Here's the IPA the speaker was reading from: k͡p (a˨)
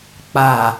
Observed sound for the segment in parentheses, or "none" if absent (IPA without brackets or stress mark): a˨